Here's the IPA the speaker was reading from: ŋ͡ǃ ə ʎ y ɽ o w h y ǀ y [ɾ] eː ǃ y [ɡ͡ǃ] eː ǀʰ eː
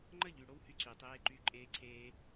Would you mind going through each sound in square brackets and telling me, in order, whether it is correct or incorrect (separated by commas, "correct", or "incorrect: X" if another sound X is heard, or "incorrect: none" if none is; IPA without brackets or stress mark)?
incorrect: tˤ, incorrect: ǃʼ